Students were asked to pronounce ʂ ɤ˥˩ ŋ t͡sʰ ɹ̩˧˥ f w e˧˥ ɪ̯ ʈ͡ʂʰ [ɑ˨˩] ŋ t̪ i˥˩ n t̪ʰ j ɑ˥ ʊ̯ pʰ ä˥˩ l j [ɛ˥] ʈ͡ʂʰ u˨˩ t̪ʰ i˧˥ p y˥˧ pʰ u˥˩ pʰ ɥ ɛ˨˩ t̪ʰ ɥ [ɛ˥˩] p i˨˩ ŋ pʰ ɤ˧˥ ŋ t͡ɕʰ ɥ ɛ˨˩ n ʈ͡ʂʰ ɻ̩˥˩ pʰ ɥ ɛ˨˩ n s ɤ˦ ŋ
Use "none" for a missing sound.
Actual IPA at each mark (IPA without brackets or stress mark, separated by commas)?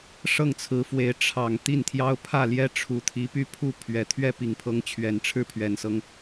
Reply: ɑ˨˩, ɛ˥, ɛ˥˩